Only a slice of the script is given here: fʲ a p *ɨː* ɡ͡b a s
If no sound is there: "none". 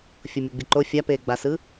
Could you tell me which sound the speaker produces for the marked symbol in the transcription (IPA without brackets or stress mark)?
eː